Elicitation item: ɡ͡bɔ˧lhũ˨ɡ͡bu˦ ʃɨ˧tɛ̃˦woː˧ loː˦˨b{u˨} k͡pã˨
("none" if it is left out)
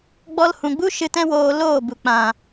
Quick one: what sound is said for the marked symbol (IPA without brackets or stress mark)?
u˨